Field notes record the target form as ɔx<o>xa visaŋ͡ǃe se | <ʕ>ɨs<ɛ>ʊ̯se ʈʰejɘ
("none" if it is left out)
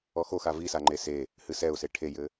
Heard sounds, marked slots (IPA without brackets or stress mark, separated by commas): o, h, ɛ